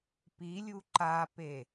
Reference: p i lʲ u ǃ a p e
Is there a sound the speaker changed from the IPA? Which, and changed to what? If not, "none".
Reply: none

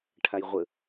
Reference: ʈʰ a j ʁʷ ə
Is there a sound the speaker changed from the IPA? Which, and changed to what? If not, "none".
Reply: none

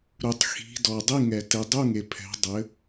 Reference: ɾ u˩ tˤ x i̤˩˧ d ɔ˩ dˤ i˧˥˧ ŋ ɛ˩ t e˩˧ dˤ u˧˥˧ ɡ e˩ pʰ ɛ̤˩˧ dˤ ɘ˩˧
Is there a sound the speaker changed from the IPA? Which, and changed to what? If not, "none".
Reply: ɡ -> ŋ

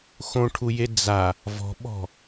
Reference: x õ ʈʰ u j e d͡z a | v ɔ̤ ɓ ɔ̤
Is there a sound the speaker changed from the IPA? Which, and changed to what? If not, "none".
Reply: none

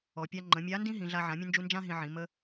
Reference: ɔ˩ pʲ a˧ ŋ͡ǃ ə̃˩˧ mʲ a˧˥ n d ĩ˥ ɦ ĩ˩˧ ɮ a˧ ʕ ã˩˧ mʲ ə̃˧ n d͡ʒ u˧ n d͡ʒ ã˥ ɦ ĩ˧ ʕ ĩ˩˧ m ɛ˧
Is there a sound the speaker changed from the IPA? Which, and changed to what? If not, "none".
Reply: ɛ˧ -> ə˧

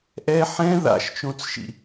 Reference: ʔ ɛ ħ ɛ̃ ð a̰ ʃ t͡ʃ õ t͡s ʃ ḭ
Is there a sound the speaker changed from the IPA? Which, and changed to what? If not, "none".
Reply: none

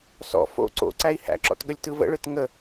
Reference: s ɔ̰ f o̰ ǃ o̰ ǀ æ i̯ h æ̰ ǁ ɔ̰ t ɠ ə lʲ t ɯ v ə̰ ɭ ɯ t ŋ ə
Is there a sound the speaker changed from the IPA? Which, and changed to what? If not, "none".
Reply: ǃ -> ǀ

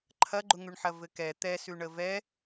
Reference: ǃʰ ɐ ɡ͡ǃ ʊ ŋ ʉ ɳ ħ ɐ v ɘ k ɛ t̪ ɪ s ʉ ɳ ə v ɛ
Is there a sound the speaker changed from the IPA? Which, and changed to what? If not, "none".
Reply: ɪ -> ɛ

